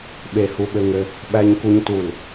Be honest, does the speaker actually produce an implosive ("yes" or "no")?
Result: yes